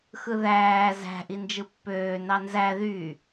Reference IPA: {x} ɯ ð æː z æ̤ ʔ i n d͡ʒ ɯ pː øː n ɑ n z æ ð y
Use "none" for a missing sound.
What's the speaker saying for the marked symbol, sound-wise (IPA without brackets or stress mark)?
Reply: x